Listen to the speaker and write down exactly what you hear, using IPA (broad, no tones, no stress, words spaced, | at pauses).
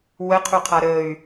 wəqʰuqʰa ɾəy̯